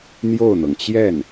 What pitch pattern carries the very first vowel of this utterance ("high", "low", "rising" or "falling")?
falling